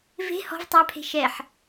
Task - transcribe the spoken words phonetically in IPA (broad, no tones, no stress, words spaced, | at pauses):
ve̤ hɔ̤v tˤapʰe̤ ʃɛħ